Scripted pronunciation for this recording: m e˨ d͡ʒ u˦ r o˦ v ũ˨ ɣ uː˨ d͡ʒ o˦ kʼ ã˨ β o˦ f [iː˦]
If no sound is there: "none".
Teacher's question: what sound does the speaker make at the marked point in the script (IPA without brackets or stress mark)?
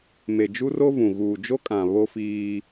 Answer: iː˦